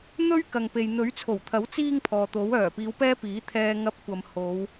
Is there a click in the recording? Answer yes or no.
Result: no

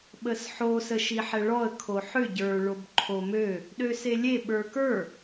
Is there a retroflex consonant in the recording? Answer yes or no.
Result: yes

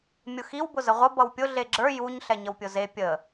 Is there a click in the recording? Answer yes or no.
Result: yes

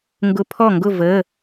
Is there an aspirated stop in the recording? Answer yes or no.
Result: yes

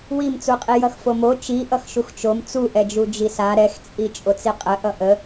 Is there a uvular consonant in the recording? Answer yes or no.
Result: yes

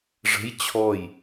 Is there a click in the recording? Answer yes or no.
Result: no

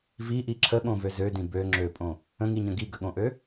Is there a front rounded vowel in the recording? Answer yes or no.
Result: yes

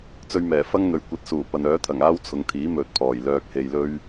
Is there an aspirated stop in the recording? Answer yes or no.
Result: yes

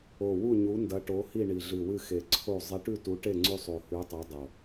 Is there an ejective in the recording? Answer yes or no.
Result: no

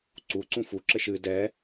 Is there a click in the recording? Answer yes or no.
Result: yes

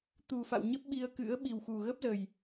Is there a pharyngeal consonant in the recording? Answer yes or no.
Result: no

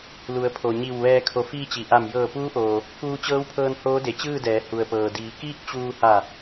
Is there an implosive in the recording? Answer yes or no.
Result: no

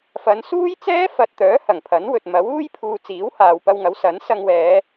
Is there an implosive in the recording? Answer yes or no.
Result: no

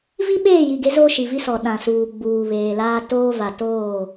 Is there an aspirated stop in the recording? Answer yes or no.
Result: no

